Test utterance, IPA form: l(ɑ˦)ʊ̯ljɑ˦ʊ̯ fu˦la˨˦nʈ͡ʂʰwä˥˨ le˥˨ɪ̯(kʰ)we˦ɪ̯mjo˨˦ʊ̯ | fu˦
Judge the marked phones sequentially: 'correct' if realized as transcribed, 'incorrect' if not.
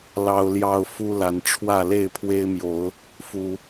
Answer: correct, incorrect

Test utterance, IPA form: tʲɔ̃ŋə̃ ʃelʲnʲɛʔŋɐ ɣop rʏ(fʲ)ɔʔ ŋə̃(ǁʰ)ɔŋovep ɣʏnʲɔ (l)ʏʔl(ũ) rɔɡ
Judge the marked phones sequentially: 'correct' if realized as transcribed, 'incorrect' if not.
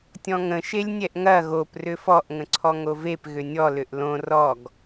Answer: incorrect, incorrect, correct, incorrect

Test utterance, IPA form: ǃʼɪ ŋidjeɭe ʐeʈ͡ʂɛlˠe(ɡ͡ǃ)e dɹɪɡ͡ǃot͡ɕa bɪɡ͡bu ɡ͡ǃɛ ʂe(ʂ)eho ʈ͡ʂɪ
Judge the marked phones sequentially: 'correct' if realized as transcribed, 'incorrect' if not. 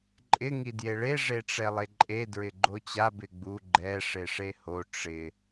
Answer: incorrect, correct

